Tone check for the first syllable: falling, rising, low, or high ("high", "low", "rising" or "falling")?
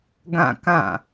falling